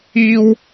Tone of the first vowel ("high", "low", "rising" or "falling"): high